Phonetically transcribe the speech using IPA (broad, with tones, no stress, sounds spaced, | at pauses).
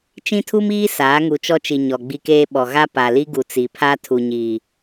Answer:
t͡ʃ ĩ˦ tʰ u˦ m iː˦ s aː˨˦ ŋ u˨ t͡ʃ ɔ˦ t͡ʃ i˨ ɲ ɔ˨ ɡ͡b i˦ k eː˦ ɓ ɔ˨ ɣ a˦ p a˨ l i˦ ɡ u˨ t͡s i˨ pʰ a˦ tʰ u˨ ɲ iː˨